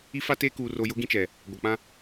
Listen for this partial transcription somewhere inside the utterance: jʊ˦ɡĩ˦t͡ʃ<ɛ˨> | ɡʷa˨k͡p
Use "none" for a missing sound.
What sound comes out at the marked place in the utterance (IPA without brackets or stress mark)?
ɛ˨